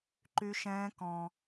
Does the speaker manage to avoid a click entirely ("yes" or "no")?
no